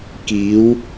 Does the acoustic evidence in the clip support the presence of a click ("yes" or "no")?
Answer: no